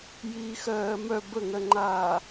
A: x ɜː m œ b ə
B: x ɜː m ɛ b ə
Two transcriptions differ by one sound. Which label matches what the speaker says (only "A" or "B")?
A